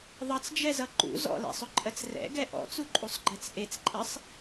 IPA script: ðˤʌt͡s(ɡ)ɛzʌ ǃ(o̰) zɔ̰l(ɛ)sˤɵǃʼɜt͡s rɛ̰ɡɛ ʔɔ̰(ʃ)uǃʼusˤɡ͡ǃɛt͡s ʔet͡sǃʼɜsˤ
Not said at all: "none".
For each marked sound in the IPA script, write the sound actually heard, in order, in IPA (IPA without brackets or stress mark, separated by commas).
d͡ʒ, ṵ, ɛ̰, t͡s